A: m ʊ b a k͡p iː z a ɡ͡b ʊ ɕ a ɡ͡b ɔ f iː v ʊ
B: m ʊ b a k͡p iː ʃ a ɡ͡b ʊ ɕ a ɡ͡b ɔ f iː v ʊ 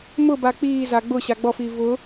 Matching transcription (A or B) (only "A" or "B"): A